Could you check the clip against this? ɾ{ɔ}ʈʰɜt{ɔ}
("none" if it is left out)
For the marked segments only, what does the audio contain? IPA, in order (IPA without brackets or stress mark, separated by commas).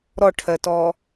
ɔ, ɔ